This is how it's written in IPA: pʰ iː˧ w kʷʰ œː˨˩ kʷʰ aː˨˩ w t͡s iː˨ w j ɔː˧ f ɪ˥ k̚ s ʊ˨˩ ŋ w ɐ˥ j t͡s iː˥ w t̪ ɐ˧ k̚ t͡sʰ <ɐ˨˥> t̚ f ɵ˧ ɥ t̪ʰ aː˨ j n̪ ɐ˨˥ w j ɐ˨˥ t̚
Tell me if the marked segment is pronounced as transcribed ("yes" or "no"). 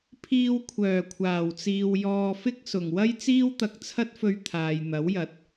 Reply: no